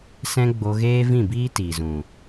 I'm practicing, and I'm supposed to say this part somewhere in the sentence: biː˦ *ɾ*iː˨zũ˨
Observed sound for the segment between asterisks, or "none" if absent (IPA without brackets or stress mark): t